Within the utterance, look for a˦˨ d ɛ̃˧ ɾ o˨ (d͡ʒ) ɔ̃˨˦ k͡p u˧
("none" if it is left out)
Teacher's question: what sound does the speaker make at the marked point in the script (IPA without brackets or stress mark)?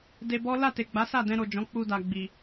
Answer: d͡ʒ